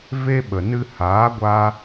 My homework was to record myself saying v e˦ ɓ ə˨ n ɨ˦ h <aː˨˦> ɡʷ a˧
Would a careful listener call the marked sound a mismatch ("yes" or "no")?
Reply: no